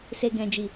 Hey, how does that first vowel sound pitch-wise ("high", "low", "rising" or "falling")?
low